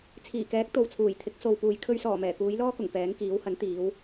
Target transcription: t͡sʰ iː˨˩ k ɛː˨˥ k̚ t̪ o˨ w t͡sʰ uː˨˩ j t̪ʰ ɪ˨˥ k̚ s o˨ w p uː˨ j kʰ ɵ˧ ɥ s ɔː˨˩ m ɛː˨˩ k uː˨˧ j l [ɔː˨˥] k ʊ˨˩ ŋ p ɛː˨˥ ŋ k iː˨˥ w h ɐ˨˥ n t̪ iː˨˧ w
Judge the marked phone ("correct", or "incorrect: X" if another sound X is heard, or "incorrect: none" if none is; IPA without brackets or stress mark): incorrect: ɔː˥